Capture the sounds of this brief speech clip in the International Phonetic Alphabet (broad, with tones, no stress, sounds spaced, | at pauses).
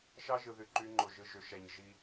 ʃ ɑ˦ ʒ ɯ˨ ð y˨ ǃ y˦ ŋ͡ǃ o˨ ʒ ɯ˨ ʒ ø˨ ʃ æ˨ ɲ ʒ i˦